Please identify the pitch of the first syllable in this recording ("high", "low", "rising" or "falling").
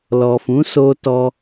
low